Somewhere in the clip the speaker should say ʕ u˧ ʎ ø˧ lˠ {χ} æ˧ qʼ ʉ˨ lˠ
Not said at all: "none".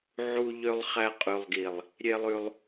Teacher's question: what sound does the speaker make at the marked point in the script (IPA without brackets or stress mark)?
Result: χ